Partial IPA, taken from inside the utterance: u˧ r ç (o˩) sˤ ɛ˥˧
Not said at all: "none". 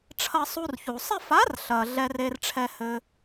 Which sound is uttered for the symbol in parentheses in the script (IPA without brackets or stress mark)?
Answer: u˩